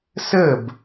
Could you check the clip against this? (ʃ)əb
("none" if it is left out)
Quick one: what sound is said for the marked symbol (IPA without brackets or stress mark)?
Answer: s